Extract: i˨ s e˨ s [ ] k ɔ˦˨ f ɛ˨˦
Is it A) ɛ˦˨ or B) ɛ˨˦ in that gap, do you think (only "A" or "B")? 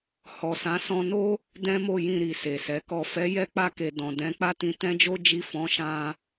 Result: B